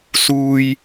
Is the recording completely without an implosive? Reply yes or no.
yes